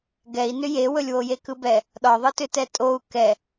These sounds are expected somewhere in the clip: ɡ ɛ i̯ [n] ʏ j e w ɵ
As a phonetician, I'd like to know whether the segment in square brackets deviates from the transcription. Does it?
no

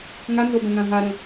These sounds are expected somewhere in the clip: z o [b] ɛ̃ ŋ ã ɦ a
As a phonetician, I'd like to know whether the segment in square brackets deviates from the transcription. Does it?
no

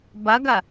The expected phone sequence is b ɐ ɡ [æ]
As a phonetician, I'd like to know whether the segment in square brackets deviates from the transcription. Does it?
yes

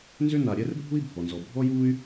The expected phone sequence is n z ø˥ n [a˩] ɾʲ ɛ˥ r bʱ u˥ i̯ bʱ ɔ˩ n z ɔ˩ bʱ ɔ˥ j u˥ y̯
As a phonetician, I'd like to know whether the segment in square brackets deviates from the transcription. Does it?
no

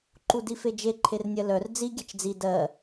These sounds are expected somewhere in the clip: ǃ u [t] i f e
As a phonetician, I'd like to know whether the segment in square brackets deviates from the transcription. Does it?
yes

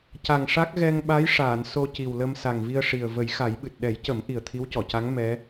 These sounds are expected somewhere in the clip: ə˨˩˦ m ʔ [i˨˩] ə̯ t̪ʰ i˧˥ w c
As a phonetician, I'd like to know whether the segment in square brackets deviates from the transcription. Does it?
no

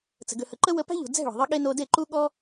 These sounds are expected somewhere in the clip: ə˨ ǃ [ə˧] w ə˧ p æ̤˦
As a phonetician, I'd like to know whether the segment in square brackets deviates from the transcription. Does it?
yes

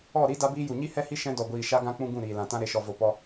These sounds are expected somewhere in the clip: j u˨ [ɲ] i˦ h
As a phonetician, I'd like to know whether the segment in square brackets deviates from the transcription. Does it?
no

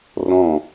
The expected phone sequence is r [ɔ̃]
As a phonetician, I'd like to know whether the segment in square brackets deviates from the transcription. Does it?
no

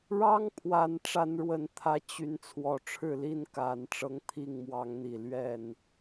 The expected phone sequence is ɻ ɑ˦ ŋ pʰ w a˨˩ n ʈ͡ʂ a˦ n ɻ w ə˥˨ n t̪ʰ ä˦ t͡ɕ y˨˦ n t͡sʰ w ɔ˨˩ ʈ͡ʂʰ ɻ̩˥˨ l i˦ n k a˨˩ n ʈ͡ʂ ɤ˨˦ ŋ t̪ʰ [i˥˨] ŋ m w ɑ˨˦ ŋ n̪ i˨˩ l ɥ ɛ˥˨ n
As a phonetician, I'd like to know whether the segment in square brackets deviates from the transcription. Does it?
no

